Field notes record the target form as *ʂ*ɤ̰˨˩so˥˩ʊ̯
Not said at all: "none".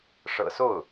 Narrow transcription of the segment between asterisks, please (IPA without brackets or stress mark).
ʂ